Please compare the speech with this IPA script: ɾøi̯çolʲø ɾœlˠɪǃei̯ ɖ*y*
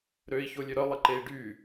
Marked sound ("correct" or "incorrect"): correct